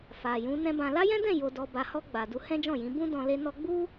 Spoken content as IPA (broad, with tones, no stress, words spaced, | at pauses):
fa˨ jũ˨˦nɛ̃˦bã˧ la˦jɛ̃˦dɛ̃˦˨ jo˨dɔ˨ ba˨hɔ˧ ɡ͡ba˨ du˧hɛ̃˦d͡ʒɔ̃˦˨jĩ˨˦ bũ˦dɔ̃˧ le˧ nɔ˦ ɡ͡bu˦